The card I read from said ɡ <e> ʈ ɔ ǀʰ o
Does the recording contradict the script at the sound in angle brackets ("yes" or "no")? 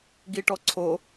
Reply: yes